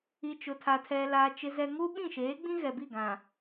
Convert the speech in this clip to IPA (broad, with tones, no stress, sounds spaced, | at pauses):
i˨ t͡ʃ ʊ˨ tʰ a˨ tʰ ɛ˨ l a˨ t͡ʃ ɪ˨ z ɛ˨ ŋ u˦ ɓ ĩ˦˨ ʃ eː˨˦ ɡ͡b ĩ˦ ɣ ɛ˨ b i˦˨ ɡ ã˨